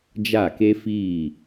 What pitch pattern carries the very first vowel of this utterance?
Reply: falling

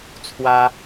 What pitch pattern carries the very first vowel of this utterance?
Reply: high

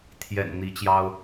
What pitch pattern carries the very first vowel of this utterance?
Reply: low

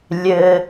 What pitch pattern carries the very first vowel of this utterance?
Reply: low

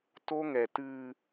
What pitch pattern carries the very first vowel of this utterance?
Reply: high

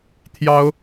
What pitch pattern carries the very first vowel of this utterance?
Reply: high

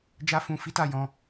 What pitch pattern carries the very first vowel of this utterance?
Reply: high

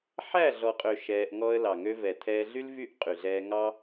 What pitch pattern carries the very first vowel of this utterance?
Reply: falling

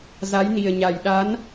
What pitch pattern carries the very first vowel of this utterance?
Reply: rising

